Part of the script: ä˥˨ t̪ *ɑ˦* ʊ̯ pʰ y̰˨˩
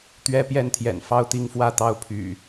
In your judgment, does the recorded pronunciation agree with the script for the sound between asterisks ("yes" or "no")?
yes